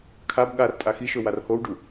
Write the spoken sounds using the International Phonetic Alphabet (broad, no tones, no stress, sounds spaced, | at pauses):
kʰ a b ɠ a r tʼ a x i ʃ ɵ w a r h o w ɖ u